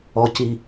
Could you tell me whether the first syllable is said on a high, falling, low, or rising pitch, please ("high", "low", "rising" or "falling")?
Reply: low